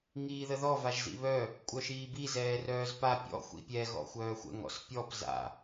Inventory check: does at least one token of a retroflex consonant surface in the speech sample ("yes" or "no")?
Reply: no